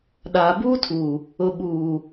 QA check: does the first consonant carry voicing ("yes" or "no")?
yes